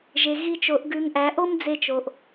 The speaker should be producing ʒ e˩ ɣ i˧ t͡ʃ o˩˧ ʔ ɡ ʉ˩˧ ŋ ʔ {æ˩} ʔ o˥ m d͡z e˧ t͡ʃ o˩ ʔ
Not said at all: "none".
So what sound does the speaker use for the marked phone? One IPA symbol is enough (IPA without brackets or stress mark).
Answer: æ˩˧